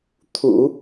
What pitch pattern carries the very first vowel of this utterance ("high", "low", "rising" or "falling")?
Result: low